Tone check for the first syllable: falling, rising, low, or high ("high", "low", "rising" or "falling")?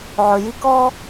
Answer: low